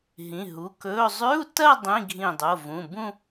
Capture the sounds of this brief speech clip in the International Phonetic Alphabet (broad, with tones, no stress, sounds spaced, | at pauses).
ɦ ĩ˩˧˩ ɦ u˩˧˩ k ɵː˧˥˧ zˤ ʉ˧˥˧ u̯ t ɐ˥˧ dˤ ĩ˧˥˧ ɡʱ ĩ˧˩ dˤ o˩˧˩ v ũ˩˧˩ b ũ˥˧